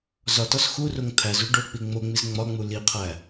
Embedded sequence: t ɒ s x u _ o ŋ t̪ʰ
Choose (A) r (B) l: A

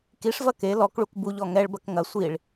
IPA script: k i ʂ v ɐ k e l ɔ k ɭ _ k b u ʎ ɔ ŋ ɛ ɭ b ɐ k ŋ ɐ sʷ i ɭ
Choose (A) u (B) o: A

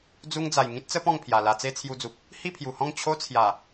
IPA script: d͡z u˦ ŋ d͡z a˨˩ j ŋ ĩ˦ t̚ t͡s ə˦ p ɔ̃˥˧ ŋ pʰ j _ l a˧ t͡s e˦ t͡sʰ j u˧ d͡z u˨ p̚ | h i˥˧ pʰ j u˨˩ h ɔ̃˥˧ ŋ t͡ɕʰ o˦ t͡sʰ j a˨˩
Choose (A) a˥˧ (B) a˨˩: B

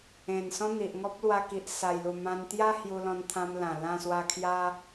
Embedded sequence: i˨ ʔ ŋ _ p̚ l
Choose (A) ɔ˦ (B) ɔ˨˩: A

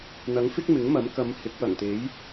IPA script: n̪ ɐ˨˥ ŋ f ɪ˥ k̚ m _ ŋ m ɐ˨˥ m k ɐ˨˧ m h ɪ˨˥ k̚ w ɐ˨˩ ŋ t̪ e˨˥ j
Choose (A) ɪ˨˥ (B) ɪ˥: A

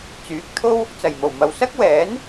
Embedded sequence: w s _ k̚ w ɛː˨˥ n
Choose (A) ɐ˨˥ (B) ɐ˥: B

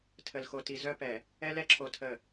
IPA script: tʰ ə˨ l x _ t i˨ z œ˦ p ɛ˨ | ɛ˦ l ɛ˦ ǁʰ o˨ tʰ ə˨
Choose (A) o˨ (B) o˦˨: A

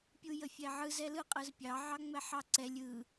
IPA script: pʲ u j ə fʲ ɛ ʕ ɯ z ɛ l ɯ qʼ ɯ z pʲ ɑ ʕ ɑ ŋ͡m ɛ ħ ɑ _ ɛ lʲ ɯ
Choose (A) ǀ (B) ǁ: A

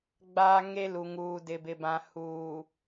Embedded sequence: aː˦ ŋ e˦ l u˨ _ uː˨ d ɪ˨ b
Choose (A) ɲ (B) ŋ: B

